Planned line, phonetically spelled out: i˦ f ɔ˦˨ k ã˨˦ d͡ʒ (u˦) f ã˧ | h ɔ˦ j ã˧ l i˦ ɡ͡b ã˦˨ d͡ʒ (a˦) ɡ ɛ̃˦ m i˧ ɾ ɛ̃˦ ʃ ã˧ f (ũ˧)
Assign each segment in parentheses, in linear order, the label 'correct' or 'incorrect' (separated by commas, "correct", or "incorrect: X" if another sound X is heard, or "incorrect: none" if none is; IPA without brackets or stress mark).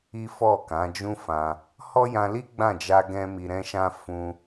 incorrect: ũ˦, incorrect: a˧, correct